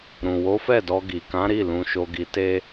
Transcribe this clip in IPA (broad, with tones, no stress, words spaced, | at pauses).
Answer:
ɾũ˨wo˨˦fɛ˦˨ dɔ˧ ɡi˨kã˨˦ ɾi˦˨ lũ˧ʃo˧ɡi˧ te˦